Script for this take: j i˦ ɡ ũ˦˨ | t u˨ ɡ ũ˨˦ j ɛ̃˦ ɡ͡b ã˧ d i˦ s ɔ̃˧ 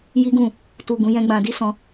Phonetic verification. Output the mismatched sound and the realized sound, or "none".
none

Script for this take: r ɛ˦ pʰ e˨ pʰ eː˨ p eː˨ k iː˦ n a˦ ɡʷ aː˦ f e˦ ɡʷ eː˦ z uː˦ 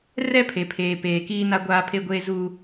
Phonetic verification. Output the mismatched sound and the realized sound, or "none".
f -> pʰ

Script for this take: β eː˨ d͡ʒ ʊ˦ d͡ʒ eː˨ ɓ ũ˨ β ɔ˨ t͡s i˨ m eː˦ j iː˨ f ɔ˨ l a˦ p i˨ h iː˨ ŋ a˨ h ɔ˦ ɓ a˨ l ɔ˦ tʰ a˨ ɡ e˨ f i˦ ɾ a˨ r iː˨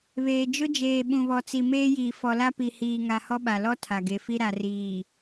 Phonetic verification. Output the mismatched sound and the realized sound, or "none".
none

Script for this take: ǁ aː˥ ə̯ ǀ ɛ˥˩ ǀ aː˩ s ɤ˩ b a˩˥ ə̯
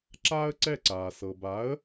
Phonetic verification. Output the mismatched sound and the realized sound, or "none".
none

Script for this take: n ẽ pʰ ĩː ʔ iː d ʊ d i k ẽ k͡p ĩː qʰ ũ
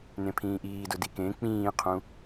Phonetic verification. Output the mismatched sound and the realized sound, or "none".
none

